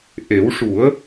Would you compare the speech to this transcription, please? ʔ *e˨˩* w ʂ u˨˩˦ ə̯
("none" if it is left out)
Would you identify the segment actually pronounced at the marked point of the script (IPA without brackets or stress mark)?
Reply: e˨˩˦